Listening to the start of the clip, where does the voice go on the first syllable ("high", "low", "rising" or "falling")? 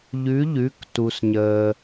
rising